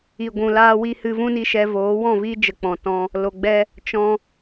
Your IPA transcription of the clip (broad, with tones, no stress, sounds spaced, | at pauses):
i˨ ɡʷ ũ˨ l aː˧ w i˧ h ɨ˧ v ũ˦ n i˧ ʃ ɛ˧ v oː˨˦ w ɔ̃˦˨ v i˦ d͡ʒ ə˧ k͡p ɔ̃˧ t ɔ̃˦ | l o˧ ɡ͡b ɛ˦ | t͡ʃ ɔ̃˧